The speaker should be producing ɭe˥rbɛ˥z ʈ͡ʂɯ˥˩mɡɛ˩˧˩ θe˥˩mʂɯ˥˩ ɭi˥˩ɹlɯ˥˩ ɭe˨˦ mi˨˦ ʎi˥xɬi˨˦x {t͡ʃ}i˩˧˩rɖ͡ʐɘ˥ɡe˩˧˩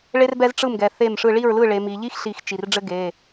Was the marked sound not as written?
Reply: no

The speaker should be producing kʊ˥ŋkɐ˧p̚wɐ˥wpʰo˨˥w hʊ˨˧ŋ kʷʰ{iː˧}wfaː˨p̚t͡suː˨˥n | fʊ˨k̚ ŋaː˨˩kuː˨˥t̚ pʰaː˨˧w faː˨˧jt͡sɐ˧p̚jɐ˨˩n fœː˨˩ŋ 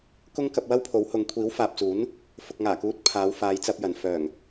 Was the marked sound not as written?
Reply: yes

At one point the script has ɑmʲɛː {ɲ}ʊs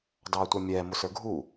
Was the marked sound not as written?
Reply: yes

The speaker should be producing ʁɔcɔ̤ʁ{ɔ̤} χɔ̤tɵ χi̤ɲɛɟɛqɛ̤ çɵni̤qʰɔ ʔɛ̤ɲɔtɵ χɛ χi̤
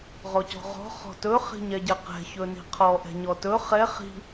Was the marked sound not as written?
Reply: no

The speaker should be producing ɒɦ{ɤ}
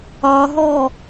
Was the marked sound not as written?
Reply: yes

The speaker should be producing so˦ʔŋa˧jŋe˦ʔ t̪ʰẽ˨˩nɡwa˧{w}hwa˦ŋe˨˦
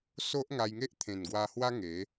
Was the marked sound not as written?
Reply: yes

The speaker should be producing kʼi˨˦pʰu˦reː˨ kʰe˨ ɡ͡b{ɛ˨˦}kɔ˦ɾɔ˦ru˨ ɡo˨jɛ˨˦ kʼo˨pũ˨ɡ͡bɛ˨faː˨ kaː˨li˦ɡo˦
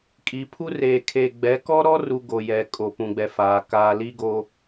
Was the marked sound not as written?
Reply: no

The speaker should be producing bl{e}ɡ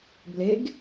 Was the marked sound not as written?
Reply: no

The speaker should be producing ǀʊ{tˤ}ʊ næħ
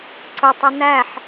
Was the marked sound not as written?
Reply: no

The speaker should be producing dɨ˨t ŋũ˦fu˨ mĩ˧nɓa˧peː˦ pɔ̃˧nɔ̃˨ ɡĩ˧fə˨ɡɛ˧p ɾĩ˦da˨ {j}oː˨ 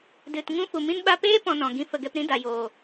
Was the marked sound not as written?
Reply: no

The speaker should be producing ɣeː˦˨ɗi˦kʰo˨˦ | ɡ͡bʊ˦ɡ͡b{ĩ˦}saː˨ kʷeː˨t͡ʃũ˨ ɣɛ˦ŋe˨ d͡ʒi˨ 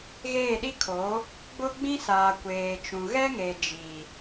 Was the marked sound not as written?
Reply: no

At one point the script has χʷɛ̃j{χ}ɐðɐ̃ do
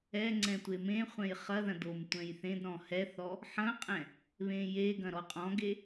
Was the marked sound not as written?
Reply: no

